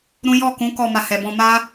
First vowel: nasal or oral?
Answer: nasal